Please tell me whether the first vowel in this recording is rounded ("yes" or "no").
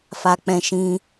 no